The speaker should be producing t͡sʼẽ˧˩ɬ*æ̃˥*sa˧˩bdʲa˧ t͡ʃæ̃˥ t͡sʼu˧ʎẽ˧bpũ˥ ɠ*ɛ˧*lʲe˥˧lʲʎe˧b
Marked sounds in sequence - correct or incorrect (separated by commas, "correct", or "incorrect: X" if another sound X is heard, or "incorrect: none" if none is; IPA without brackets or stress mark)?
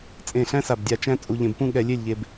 correct, correct